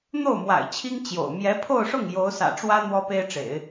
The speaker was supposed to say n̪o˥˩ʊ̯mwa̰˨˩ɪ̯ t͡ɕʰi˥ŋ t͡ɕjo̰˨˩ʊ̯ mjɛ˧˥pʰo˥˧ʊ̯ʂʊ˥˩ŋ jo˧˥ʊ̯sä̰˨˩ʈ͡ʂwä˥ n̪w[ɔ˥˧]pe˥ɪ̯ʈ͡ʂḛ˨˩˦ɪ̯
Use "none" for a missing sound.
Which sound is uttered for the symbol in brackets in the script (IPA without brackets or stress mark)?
ɔ˥